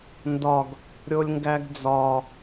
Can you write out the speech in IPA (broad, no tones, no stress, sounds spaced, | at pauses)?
n d ɒ ɡ | ɾʲ o lʲ ŋ ɡ æ ɡ d͡z ɒ